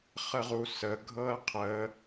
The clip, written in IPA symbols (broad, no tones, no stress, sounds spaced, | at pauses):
χ ə ʁ u s ə ɡʱ ɤ ɐ̯ qʰ ə